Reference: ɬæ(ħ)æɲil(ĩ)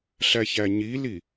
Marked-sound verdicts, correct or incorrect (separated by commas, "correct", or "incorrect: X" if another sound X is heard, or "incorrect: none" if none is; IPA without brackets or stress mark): incorrect: ç, incorrect: i